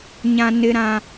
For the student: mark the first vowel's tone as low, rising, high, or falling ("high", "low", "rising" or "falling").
low